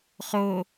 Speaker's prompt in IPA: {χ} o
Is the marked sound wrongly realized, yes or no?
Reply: no